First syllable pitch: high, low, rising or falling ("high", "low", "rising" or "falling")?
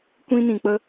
high